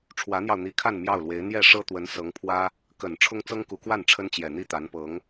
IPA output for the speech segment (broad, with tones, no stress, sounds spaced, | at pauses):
ʈ͡ʂʰ w ä˧˥ n̪ j ɑ˧ ʊ̯ n̪ i˧˥ kʰ a˥˧ n m j ɑ˥˩ ʊ̯ l w e˧˥ ɪ̯ n̪ j ɛ˥˩ ʂ ɤ˥ t̪ w ə˧˥ n s ɤ˧˥ ŋ pʰ w ä˥ | k ə˨˩ n ʈ͡ʂʰ ʊ˥ ŋ t͡s ɤ˥ ŋ k u˧˥ k w a˥˩ n ʈ͡ʂʰ ə˥ n t͡ɕ j ɛ˨˩ n̪ i˥˩ t̪ a˧˥ n p ɤ˧˥ ŋ